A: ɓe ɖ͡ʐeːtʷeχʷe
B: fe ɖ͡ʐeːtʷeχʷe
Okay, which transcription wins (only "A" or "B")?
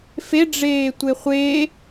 B